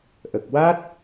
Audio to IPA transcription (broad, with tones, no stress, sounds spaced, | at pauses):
ʔ ə˨˩ k̚ w a˦˥ t̚